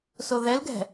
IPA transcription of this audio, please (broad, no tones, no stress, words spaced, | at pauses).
soðɛlɡɛ̤